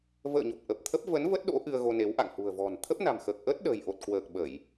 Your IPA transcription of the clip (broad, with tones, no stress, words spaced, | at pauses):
və̰ː˧˨ɲo˨˩p̚ ʔə˨˩p̚t̪ʰə˦˥p̚ və˨˦nvə˦˥t̚ɗo̰˧˥ ʔɨ˧ə̯ɣo˧ne˨˦w ʔa̰˧˨ŋhṳ˨˩ə̯vɔ̤˨˩n t̪ʰə˦˥p̚na̤˨˩mxəː˨˩k̚ʔəː˦˥t̚ ɗə̤ː˨˩jʔo˨˩t̚kwəː˨˩k̚ ɓə˧˩˨j